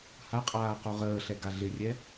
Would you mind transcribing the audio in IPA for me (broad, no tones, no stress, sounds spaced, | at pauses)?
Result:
h a qʼ aː q o ʁ əː ɬ ɛ ɡ a ɮ ɪ rʲ ɛ